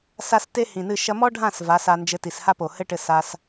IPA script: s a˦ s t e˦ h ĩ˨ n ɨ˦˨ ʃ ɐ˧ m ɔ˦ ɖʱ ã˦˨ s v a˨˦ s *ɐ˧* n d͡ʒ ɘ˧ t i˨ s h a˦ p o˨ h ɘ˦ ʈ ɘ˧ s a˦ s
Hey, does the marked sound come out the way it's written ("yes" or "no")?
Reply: no